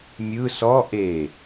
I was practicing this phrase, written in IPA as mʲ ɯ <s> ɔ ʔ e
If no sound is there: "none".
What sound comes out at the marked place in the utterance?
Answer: s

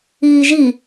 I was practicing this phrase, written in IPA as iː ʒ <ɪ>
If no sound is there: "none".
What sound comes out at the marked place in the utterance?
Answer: i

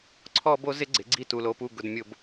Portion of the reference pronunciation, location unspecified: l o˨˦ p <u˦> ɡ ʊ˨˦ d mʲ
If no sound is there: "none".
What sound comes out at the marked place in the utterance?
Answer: u˦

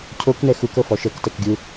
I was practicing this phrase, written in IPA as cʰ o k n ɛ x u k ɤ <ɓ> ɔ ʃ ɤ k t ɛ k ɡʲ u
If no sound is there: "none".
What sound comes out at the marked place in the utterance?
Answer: f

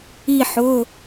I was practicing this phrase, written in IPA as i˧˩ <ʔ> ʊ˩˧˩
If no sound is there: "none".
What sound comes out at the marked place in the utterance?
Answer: ħ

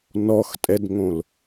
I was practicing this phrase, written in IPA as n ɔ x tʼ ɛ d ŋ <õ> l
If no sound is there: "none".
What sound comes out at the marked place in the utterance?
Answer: õ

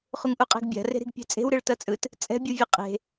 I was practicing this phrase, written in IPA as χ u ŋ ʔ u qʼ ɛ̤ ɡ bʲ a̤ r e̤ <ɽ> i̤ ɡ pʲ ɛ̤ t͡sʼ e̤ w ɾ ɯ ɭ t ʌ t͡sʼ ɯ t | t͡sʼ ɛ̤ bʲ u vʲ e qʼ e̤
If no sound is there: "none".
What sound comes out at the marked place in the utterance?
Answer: ɾ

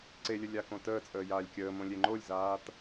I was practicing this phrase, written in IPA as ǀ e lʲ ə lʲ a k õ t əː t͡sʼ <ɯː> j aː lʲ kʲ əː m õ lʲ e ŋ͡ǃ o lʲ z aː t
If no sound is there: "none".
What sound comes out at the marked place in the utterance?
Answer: əː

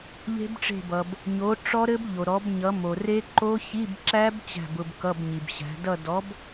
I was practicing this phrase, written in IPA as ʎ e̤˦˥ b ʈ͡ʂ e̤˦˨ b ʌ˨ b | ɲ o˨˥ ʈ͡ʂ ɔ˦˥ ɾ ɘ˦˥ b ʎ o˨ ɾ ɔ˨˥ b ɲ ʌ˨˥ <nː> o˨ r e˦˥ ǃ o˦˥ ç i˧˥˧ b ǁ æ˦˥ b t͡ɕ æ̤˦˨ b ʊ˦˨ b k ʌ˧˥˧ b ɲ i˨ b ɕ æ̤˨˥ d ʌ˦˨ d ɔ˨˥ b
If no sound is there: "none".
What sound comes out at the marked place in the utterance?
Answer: m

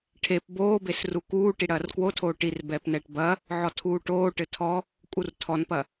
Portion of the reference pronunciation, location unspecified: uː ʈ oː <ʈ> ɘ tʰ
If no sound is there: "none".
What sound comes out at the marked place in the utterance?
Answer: ʈ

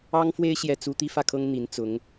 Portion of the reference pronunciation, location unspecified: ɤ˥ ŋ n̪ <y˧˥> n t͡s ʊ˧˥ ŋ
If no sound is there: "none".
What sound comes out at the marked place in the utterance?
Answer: i˧˥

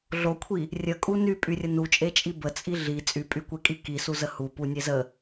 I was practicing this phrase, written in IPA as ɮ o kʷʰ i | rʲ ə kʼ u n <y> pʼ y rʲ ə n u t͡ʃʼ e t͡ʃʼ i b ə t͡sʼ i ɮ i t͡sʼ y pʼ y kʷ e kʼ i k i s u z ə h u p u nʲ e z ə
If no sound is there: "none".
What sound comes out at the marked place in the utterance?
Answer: y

